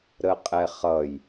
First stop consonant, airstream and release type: ejective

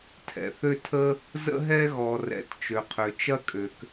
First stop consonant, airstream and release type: aspirated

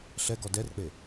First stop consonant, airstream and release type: plain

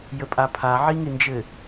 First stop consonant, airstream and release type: ejective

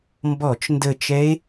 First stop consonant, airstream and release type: plain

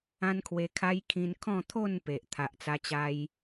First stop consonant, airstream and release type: aspirated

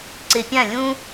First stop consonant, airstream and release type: click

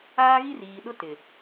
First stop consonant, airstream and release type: implosive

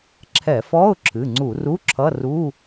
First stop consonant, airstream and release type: click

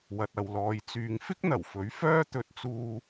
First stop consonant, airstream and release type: plain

